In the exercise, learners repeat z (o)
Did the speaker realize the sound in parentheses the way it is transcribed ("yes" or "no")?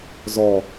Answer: no